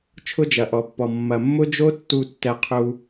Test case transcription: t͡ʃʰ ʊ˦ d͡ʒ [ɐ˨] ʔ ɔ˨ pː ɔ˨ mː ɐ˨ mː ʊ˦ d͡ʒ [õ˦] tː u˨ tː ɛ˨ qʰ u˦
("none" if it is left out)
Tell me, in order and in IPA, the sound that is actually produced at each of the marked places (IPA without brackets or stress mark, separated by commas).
ɐ˨, o˦